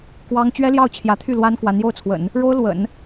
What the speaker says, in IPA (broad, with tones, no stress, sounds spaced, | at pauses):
k w ɑ˥ ŋ t͡ɕ ɥ ɛ˥ l j ɑ˥˩ ʊ̯ t͡ɕʰ j ä˧˥ t̪ʰ y˥˩ l w a˥ n k w a˧˥ n j o˥˩ ʊ̯ t͡sʰ w ə̰˨˩˦ n | ɻ o˥ ʊ̯ l w ə̰˨˩˦ n